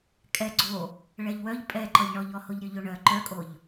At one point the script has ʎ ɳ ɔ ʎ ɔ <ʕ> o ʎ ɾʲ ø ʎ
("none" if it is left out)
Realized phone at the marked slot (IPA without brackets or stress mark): h